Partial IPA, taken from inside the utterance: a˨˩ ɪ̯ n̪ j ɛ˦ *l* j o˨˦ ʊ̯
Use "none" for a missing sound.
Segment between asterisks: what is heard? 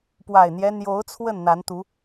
n̪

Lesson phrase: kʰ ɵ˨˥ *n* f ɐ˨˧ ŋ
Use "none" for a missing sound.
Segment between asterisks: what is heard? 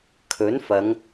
n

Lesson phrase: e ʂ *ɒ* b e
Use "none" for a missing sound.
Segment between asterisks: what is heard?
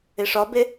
ɒ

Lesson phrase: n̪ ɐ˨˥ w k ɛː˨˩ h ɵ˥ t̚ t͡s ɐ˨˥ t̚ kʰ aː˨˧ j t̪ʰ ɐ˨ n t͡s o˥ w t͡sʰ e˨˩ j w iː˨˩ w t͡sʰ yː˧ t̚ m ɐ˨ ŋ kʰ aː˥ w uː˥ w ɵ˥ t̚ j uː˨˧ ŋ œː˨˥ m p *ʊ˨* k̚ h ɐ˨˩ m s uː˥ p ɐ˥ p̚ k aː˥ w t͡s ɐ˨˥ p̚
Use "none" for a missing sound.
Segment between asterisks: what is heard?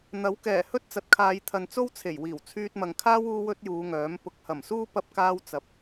ʊ˨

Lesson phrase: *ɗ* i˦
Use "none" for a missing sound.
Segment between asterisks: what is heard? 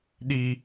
ɗ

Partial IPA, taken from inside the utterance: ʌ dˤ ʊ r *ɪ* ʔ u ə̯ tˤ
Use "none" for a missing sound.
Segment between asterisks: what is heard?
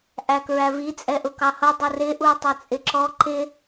ɪ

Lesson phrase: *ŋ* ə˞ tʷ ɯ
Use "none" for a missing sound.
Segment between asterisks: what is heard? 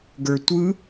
ɡ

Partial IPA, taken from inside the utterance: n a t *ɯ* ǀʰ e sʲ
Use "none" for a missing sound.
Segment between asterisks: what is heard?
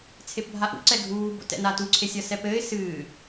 u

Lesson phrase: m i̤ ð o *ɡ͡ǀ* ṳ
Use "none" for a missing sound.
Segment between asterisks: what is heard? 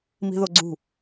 ɡ͡ǀ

